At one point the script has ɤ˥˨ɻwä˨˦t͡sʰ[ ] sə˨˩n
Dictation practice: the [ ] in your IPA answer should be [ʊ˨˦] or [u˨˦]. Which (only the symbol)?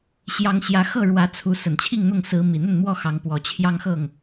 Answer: u˨˦